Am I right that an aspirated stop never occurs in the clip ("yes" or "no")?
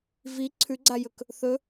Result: no